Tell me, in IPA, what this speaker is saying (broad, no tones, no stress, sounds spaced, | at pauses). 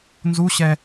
n z u ɕ ɛ